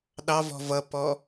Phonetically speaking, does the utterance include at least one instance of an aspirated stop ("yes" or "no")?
no